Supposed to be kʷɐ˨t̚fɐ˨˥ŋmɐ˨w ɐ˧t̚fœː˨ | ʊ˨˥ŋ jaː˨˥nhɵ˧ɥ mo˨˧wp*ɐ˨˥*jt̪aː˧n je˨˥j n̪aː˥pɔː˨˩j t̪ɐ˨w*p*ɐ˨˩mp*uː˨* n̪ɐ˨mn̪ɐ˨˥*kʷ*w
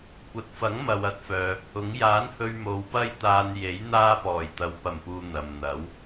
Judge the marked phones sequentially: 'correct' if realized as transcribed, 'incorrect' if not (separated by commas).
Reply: incorrect, correct, correct, incorrect